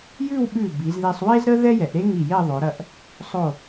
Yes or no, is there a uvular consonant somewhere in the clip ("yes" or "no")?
no